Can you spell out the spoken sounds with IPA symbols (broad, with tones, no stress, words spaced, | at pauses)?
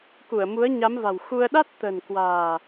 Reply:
ku˧˩ə̯mu˨˦ə̯ɲa˨˦mva̤˨˩w xu˧ə̯ ɗa˦˥t̚t̪ə̤˨˩nkwa̤ː˨˩